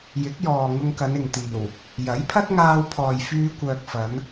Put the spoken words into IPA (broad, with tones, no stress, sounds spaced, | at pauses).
j ɪ˨˥ k̚ j ɔː˨ ŋ ʊ˧ ŋ k ɐ˨˧ n ɪ˨ ŋ t̪ iː˨˩ w | j ɐ˨˥ j pʰ ɐ˥ t̚ ŋ aː˧ w pʰ ɔː˨ j f yː˧ kʷ œː˨ k̚ f ɐ˨˧ n